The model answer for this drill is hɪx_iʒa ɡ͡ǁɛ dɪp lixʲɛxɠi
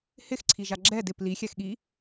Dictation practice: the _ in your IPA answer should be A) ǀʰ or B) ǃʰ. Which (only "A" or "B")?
A